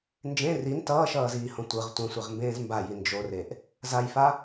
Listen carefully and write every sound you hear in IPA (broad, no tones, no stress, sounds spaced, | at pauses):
n d͡ʒ ẽ r i n t ʌː ʃ ʌː z iː h õ tʷ ɯ ʁ tʷ ẽ sʷ i ʁ m b ẽː z m b a j i n d͡ʒ o r e ʔ | z a j f a